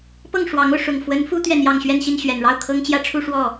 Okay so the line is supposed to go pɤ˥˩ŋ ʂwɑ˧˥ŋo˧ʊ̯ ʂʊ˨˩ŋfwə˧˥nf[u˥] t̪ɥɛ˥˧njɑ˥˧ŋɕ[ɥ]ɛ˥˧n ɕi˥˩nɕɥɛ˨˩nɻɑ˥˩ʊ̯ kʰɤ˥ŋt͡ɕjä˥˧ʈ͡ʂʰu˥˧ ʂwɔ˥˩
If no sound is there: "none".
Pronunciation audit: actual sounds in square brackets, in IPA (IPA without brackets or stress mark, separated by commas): u˥, ɥ